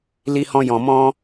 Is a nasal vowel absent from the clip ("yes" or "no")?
no